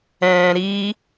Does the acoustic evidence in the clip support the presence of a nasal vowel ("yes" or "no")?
yes